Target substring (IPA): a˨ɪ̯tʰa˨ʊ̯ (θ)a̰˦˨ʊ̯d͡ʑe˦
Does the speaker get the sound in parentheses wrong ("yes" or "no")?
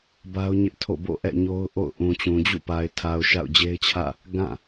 yes